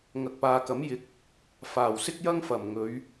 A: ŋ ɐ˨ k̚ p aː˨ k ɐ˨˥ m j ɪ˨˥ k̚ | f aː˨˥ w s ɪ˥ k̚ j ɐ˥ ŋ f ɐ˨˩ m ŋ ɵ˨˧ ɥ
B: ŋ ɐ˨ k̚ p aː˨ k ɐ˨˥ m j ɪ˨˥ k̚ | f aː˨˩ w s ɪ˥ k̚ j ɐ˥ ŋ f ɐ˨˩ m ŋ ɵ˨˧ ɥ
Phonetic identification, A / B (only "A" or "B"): B